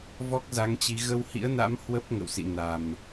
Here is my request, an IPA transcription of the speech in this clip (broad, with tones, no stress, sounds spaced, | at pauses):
v ɔ˦˥ k̚ z a˨˦ ŋ t͡ɕ i˨˦ ɣ ə˧ w h ḭ˧˥ ə̯ n a̰˧˥ m h w ə˦˥ p̚ ŋ ə̰˧˨ w s ḭ˧˨ n a˨˩ m